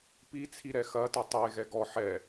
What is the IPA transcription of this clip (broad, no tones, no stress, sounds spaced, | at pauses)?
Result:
p i t͡sʰ i ɾ ɛ x ɐ t ɐ tˤ e ɣ ɛ ɡ ɔ ħ ɛ